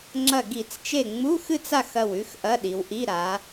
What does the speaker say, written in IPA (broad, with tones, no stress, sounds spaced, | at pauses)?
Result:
ŋ͡ǁ ɐ˧˩ ɡ i˧˩˧ t͡s t͡ʃ e˧˩ ŋ͡m u˧˥˧ x ɨ˥˨ t͡s a˥˨ x ɐ˧˩ w ʉ˧˥˧ x ʔ ɐ˧˥˧ ɗ i˩˧ w ʔ i˧˥˧ ɾ a˩˧